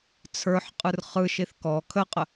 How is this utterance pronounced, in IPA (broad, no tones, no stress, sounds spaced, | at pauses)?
t͡sʰ ə˞ ħ qʼ ɯ r χ ɯ ʃ i θ k ɔ kʰ ə qʼ ə